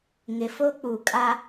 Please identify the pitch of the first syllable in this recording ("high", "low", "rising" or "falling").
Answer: low